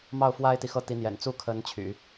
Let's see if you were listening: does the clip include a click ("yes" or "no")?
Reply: no